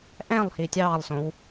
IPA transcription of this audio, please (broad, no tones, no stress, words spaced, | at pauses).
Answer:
ʔɛ̃lˠhi tʲɑːlˠsõw